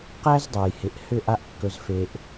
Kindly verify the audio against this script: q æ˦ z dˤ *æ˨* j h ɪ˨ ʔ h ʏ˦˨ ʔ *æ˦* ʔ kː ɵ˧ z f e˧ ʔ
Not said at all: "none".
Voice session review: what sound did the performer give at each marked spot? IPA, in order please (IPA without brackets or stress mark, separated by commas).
ɛ˨, a˦